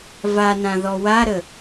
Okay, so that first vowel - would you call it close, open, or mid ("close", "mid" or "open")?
open